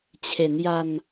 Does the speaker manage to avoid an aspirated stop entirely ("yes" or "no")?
no